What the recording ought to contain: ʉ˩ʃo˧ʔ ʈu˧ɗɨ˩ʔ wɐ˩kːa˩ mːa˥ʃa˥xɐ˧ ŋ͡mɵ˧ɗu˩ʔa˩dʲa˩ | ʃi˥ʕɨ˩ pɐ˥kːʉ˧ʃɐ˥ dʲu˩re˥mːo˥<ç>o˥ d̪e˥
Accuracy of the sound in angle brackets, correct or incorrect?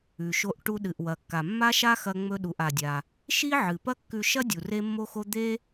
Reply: incorrect